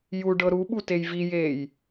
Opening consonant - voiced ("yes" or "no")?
yes